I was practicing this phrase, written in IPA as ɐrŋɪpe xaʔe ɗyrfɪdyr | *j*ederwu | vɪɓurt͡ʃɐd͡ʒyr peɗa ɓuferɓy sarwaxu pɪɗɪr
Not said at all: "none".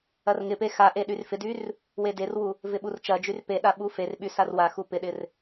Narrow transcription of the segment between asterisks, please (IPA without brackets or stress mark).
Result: w